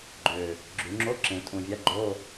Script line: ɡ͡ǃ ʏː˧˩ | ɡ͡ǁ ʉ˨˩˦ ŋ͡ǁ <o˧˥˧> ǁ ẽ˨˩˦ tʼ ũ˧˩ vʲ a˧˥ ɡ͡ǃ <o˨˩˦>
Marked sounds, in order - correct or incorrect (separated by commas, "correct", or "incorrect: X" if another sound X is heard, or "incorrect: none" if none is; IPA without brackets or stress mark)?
correct, incorrect: o˧˥˧